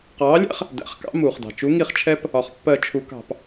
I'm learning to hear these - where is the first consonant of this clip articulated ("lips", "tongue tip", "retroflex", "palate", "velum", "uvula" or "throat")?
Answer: uvula